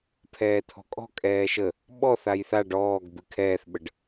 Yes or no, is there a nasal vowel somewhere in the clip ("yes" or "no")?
no